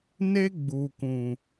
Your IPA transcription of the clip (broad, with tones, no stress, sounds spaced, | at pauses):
n e˦ ɡ͡b uː˨ k ũ˨